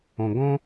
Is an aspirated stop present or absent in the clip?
absent